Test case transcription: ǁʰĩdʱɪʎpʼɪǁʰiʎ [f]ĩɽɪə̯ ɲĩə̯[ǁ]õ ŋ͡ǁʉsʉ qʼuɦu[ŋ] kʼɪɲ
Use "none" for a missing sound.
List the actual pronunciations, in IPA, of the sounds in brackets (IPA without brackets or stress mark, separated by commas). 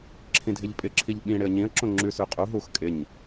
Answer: ɓ, ǁ, x